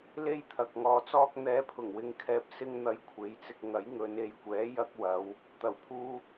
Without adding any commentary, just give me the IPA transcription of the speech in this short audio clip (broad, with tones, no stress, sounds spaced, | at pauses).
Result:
l e˥ j t̪ʰ ɐ˨ k̚ ŋ ɔː˨ t͡s ɔː˥ k̚ n̪ ɛː˨˧ pʰ ʊ˨˩ ŋ w ɪ˨˧ ŋ kʰ ɛː˨ p̚ s ɪ˥ ŋ n̪ ɐ˧ j kʷʰ e˨˥ j t͡s ɪ˧ k̚ ŋ ɐ˨˥ j ŋ ɵ˨˧ n e˨˧ j kʷ ɛː˨˥ j ɐ˧ k̚ w ɐ˨˧ w | t̪ ɐ˨˩ w pʰ uː˧